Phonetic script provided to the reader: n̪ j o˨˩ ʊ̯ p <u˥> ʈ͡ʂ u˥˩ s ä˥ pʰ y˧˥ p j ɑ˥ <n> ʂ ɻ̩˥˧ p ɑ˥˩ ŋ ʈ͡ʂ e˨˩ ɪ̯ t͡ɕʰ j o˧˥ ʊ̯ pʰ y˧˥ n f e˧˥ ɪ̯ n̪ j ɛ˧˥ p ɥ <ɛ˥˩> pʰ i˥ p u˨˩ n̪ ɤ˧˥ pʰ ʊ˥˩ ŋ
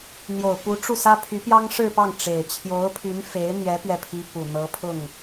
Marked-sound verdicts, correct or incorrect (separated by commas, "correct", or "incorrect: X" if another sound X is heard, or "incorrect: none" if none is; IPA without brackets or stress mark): incorrect: u˧˥, incorrect: ŋ, correct